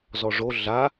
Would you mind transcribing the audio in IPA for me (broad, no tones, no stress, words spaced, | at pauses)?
zɔʐo ɮa